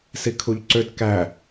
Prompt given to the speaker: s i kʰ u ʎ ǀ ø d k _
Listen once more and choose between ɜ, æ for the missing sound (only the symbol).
æ